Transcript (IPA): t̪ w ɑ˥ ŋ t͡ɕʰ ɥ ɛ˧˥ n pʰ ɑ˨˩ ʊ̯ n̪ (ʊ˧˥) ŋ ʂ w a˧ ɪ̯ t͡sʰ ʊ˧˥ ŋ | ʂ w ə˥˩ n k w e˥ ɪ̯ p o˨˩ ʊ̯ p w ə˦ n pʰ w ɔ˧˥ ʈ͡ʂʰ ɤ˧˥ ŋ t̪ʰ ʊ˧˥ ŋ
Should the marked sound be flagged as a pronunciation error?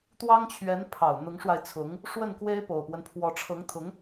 no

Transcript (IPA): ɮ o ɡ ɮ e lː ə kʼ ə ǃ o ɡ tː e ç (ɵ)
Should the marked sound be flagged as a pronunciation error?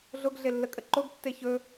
no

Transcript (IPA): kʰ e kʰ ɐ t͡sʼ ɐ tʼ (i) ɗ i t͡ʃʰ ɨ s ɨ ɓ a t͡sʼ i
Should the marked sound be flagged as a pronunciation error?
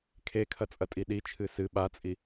no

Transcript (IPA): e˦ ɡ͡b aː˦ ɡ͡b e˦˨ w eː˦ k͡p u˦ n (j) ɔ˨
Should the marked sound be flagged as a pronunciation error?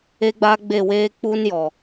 no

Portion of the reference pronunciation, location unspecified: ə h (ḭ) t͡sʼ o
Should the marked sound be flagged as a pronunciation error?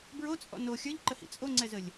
no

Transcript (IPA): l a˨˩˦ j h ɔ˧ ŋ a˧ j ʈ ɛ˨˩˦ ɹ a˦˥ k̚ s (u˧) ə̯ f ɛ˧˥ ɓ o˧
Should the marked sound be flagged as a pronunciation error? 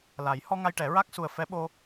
yes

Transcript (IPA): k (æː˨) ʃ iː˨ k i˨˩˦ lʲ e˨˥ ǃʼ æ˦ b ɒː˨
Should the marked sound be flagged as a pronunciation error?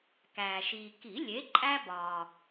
no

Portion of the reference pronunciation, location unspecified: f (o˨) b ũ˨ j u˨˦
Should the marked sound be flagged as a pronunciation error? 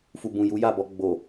yes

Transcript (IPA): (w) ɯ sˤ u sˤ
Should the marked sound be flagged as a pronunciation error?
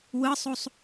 no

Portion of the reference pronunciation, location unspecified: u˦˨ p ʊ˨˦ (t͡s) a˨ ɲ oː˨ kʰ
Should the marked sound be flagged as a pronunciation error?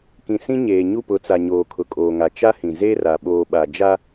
no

